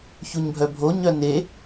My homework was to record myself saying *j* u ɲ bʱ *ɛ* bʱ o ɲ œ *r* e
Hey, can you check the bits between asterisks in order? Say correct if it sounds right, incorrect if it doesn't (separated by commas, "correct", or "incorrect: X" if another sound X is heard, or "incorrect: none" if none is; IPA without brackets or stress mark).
incorrect: ç, incorrect: œ, incorrect: n